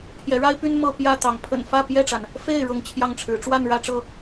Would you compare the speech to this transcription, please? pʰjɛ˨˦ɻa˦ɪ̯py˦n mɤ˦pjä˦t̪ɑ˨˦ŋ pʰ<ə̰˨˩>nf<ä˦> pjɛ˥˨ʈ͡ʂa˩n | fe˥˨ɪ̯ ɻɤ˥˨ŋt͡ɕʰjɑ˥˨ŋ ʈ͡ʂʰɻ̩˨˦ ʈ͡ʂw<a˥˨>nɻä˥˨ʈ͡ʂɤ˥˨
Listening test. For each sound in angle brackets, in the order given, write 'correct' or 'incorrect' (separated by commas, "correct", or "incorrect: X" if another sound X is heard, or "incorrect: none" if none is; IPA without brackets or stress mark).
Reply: correct, incorrect: ä˥˨, correct